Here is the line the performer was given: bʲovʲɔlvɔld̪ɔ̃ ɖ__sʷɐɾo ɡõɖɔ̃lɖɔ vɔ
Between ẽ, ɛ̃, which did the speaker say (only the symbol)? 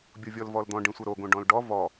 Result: ẽ